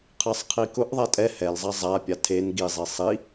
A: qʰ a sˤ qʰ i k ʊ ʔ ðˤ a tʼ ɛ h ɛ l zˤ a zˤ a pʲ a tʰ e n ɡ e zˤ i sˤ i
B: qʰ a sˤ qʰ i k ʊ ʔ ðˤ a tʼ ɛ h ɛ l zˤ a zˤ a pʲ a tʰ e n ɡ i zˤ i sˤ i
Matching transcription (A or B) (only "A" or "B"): B